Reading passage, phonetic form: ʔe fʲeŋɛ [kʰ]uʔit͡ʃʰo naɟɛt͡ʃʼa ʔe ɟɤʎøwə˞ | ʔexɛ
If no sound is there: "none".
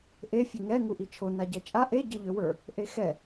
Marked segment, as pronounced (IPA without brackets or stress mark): ŋ